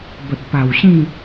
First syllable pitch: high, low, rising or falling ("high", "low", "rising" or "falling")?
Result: low